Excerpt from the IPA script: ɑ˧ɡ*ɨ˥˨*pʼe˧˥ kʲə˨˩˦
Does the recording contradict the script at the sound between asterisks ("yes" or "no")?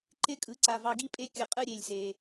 yes